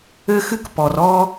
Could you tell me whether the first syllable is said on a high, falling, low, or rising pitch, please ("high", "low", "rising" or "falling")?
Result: high